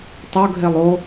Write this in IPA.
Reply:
tˤ o ɡ ɦ e lˠ o

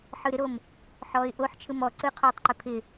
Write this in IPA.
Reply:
ħ ɯ ɾ ɪ ɾ o m | ħ ɔː ɪ̯ ʔ o ħ t͡ʃʰ ɯ m ɔ ǀ ɯ qʰ oː tˤ ǃ ɪ pʰ ɪ

